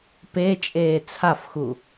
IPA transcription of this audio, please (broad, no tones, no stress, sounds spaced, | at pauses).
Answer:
p e t͡ʃʼ eː t͡sʰ a f x u